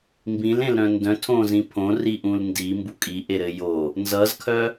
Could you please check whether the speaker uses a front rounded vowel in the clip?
yes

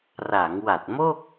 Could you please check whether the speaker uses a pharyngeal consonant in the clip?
no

